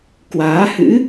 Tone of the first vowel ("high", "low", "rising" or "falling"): rising